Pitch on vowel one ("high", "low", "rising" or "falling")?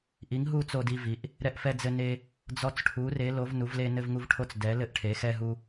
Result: rising